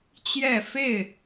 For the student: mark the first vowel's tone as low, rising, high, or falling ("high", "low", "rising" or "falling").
falling